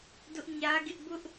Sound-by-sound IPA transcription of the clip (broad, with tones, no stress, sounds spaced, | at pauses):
d ʊ˦ ʔ ɲ ä˦ ɡ ɪ˦ ʔ b ʊ˦ ʔ